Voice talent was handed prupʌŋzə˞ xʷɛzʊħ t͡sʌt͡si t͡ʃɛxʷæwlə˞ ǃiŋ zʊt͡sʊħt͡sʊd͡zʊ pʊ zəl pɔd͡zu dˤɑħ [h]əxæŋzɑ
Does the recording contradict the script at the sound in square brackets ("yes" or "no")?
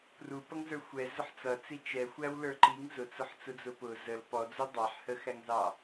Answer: no